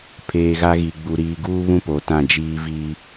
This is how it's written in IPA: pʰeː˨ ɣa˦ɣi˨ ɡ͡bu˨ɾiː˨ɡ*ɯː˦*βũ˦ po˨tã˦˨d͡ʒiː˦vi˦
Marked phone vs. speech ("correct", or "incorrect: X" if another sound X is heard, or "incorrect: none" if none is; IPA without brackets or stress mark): incorrect: uː˦